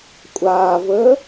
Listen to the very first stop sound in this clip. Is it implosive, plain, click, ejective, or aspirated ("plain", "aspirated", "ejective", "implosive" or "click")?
ejective